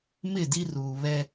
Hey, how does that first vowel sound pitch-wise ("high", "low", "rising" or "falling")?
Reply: falling